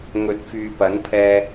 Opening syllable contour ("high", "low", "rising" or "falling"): rising